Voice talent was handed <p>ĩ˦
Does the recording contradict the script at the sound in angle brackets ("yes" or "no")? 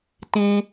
yes